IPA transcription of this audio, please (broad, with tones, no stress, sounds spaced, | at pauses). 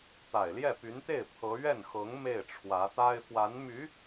t̪ a˨˩ ɪ̯ l j ɛ˥˩ p y˧˥ n t̪ e˥˩ ɪ̯ pʰ ɤ˧˥ ɥ ɛ˥˩ n x ɤ˧˥ ŋ m e˥˩ ɪ̯ ʈ͡ʂʰ w ä˧˥ t̪ a˥ ɪ̯ f w a˧˥ n m y˧˥